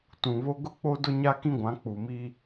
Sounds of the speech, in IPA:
t ũ˨ β o˦ ɡ ʊ˦ k͡p o˦ d ʊ˦ ɲ a˦ k ĩ˦ ɡʷ ã˨˦ k͡p u˨ m i˦

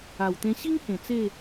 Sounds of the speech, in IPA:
a˨˩ w t̪ ẽ˧ ɕ i˦ ŋ h ẽ˨˩ t͡s e˥˧

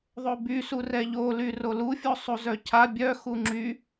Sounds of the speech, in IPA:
ðˤ o b y s u r ɛ ʎ o l y r o l u fʲ o sˤ u z œ cʰ a bʲ œ x u ŋ͡ǁ y

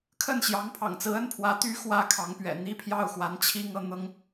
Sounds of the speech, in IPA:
kʰ ə˥˩ n ɕ j ɑ˧˥ ŋ pʰ ɑ̰˨˩ ŋ t͡s ɹ̩˧˥ ə˥ n pʰ w ä˧˥ t̪ y˧˥ x w ä˧˥ kʰ ɑ˧˥ ŋ p ɥ ɛ̰˨˩ n̪ i˥ pʰ j ɑ˥˩ ʊ̯ x w a˧˥ n t͡ɕʰ i˥ ŋ ɤ˧˥ n̪ ɤ˥ ŋ

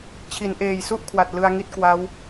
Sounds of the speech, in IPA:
t͡ɕʰ i˩˦ n ʔ eː˨˩ j s u˥˩ ʔ kʰ w a˨˩ t̚ l ɯ˧ a̯ ŋ i˦˥ t̚ k w a˦˥ w

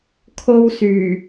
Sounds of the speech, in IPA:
kʰ o˥ w s yː˨˩

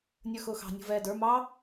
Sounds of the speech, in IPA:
nʲ ə˞ x ʊː x ɑ̤ nʲ ṳ v ɛː d ə˞ m ɑː

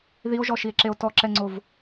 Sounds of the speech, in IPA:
ð i o̯ ʒ ɔ ʃ i e̯ ǁ e o̯ t ɔ ǁ ɛ ŋ͡ǀ o v

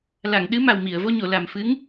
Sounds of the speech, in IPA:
l a˨˩˨ ŋ ɗ ɨ˧˥ m a˨˩ w m i˨˩˨ ə̯ v o˧ ɲ o˨˩˨ l a˨˩ m f ɨ˧˥ ŋ

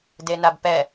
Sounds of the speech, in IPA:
d e n a b p ɛ

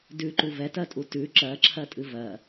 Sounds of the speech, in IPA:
d ʉ ǃ u v ɛ t ɜ tʼ u t ʉ ǁ ɜ ǁʰ ɜ tʼ ɨ v ɜ

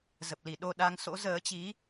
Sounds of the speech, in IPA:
z ə˨˩ p̚ l i˧˩ ɗ o˧ ɗ a˨˦ ŋ s o̰˧˥ z əː˨˦ t͡ɕ i˨˦

